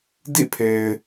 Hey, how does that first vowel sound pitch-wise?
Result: falling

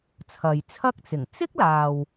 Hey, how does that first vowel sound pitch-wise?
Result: low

